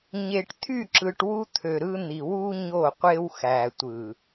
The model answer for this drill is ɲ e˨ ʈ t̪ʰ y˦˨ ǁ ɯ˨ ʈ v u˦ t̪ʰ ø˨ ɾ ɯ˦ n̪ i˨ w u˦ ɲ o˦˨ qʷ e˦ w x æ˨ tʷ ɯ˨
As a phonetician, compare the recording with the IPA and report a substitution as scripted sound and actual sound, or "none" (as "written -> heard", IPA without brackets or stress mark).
v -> w